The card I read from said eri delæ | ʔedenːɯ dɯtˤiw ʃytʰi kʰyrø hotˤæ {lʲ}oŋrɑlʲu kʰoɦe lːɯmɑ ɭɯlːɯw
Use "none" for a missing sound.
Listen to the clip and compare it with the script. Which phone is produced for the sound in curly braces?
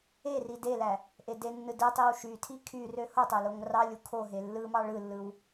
l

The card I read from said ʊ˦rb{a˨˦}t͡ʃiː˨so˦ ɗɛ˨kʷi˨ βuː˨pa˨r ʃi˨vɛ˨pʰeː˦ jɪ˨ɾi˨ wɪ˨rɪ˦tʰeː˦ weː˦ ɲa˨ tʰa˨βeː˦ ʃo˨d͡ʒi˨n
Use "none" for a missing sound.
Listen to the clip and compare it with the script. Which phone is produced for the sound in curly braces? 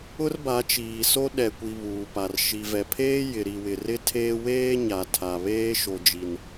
a˨˦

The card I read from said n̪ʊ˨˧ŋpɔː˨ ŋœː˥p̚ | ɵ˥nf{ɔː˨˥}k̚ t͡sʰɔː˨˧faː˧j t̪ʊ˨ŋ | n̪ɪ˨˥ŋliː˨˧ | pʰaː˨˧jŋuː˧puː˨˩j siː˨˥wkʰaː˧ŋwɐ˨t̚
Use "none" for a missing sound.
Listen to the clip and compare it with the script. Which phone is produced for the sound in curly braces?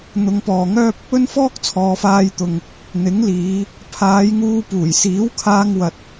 ɔː˥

